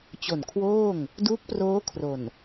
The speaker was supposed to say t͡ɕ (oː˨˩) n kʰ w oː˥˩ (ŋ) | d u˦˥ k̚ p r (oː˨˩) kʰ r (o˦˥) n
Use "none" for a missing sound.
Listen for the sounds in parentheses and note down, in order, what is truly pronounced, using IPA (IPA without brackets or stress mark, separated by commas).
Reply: o˨˩, ŋ, oː˦˥, o˨˩